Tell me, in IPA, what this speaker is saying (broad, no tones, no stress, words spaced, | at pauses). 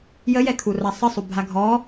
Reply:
jəjɛkʰu rasˤəsˤu bʱaɡʱɔ